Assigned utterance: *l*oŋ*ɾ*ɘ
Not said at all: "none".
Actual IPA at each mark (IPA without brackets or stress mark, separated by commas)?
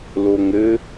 l, ɾ